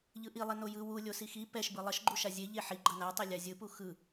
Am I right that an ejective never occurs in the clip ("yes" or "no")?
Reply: yes